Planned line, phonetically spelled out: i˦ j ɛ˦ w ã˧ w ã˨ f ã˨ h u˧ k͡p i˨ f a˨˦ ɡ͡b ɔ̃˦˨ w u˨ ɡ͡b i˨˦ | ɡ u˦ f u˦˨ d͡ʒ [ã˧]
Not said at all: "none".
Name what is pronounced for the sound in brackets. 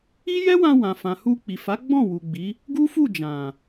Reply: ã˨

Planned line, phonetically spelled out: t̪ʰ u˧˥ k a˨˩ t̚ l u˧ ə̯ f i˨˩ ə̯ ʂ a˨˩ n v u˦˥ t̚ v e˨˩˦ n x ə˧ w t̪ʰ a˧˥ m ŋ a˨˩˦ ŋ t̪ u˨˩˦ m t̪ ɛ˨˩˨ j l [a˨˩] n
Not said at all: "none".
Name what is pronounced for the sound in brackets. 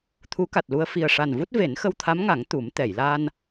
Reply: a˧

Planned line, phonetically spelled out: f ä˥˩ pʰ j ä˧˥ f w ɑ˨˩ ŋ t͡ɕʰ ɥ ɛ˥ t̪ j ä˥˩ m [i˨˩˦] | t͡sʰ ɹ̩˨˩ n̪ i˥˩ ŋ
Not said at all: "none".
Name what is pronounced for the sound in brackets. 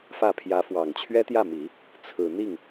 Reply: i˨˩˦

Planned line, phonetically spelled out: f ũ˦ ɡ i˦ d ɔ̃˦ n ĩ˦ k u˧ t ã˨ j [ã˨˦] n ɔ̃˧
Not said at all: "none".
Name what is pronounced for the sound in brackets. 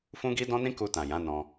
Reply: ã˨˦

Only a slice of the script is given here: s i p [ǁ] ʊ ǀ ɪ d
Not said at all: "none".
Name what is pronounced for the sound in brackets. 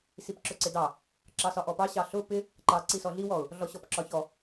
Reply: ǁ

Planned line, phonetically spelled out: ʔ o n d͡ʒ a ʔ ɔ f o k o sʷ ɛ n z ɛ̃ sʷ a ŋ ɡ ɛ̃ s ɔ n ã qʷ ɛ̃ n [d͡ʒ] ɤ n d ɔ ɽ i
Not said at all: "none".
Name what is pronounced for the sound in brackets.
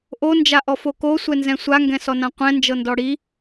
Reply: d͡ʒ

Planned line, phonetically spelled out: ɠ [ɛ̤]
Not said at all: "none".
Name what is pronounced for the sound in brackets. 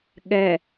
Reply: ɛ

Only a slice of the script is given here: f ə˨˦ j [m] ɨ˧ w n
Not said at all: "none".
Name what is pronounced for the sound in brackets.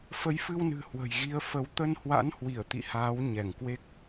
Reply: f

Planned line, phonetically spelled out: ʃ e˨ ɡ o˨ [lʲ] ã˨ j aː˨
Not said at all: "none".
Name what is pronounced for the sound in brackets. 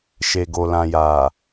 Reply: l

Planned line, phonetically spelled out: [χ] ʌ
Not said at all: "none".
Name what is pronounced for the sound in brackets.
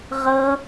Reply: ʁ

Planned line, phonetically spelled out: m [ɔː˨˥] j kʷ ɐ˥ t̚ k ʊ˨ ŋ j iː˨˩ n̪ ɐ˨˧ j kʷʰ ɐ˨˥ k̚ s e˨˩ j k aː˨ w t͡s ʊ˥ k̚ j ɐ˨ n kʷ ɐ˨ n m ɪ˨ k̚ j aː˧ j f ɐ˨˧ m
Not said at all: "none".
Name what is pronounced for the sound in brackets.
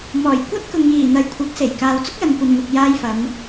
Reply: ɔː˨˩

